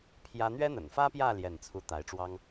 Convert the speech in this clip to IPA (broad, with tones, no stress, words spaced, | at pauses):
pʰjä˥ n̪ɥɛ˥n̪ə̰˨˩nfä˥pjä˥˧ ljɛ˥˩nt͡sʰu˥ t̪a˧˥ɪ̯ʈ͡ʂwɑ˥ŋ